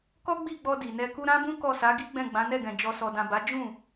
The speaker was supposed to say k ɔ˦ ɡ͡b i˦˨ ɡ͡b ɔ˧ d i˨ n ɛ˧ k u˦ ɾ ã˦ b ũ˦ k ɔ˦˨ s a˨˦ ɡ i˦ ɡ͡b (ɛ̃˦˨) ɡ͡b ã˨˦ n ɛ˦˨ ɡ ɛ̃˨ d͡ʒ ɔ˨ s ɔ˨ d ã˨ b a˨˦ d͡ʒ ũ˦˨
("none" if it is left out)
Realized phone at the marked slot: ɛ̃˦˨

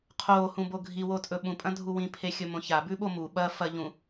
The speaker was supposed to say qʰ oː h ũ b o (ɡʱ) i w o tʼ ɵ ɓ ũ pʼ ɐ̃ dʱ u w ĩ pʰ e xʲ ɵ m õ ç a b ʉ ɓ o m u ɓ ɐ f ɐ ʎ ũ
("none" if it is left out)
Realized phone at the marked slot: ɡʱ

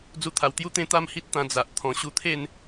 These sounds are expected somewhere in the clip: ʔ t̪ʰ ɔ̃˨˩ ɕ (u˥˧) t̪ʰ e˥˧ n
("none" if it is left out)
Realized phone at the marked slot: u˧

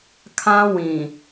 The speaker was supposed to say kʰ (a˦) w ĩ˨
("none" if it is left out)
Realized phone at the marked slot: ã˦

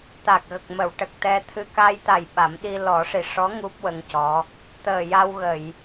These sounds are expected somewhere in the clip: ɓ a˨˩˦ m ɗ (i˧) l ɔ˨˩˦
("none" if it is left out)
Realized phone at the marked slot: i˧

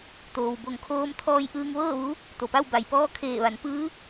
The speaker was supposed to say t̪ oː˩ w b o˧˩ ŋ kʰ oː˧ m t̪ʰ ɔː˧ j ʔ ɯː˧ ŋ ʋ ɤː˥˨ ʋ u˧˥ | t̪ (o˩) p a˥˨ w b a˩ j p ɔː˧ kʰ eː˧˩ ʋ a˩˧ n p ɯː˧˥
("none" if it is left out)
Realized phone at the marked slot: o˩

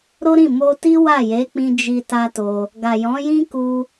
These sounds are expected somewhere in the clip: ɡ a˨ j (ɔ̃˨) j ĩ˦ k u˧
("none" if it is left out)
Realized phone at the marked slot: ɔ̃˨˦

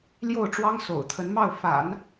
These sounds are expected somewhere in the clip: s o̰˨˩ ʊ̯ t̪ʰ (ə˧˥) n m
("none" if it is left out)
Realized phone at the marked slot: ə˧˥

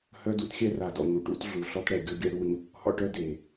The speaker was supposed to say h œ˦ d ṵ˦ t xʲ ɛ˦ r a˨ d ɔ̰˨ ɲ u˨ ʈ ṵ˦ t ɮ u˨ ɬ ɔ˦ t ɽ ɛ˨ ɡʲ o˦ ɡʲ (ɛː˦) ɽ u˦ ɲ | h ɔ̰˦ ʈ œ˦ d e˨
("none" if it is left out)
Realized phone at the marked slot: ɛ˦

